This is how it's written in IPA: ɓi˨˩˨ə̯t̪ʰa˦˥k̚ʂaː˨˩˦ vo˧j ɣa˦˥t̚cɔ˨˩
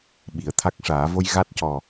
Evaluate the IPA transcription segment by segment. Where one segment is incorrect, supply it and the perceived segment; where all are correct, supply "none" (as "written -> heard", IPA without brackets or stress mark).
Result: none